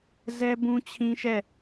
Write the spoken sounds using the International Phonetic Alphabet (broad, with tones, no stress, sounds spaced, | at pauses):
z ɛ˦ b ũ˦ t͡ɕʰ ĩ˦ ʃ ɛ˦˨